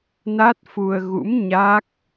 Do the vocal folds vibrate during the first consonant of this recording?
yes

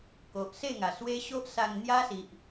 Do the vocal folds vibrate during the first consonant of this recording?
no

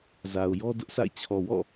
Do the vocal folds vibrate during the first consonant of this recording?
yes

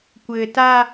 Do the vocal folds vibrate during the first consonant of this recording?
no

